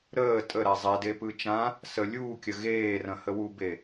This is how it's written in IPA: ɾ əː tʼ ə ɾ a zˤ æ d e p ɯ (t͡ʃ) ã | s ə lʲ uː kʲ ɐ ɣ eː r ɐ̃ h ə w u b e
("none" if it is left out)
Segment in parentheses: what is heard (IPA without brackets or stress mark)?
t͡ʃ